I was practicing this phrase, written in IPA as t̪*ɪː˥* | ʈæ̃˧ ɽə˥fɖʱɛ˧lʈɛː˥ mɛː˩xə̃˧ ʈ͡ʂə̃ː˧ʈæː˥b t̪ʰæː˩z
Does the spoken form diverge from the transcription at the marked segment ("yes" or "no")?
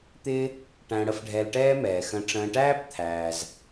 no